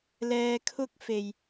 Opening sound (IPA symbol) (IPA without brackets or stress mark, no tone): l